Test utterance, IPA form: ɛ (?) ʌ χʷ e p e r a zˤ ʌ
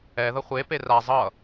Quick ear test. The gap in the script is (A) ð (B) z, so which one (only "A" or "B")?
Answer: A